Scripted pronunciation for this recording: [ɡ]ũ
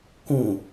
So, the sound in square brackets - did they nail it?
no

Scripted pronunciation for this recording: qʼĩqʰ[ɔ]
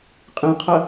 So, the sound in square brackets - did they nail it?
no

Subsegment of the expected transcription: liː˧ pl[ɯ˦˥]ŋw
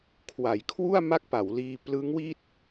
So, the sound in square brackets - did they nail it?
yes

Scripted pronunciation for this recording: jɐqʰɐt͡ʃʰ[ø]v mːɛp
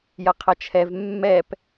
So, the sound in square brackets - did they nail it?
no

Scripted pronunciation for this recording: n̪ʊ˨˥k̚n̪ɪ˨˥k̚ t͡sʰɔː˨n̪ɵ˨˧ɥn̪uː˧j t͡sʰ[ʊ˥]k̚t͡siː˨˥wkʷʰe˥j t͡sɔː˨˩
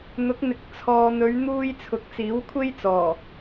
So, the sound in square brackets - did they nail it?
no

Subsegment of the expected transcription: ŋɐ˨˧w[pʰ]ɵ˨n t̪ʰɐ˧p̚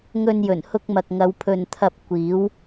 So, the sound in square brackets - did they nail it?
yes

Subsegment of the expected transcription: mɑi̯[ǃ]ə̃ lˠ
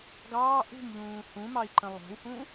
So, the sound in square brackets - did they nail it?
yes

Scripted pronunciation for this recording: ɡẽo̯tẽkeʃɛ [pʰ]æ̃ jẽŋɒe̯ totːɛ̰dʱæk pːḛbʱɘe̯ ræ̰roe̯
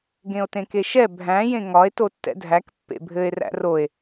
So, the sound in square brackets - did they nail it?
no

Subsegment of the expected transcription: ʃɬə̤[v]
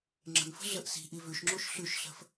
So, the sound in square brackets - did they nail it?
no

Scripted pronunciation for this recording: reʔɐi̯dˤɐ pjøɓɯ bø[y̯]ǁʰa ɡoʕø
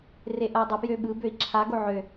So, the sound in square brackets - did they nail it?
no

